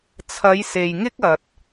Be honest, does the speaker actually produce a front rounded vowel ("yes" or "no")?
no